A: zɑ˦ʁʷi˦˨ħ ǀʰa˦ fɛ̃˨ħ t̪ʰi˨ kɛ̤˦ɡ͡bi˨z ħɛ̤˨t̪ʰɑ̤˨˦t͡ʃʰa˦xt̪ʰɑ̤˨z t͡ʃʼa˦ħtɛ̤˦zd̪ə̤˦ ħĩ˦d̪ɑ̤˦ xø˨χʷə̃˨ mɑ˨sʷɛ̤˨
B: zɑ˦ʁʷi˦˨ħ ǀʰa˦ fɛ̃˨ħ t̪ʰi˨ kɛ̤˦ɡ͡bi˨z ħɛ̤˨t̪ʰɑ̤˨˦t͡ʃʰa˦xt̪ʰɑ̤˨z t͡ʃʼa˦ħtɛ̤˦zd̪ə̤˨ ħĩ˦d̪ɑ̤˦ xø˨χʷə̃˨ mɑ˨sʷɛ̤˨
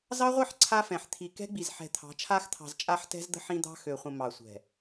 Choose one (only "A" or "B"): A